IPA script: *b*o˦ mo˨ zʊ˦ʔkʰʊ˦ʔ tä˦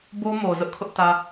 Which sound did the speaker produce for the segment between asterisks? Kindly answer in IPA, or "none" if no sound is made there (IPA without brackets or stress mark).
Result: b